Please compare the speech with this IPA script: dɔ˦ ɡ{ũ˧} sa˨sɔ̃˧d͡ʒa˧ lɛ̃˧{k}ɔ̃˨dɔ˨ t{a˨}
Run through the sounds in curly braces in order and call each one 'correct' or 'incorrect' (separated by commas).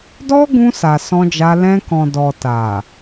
correct, correct, correct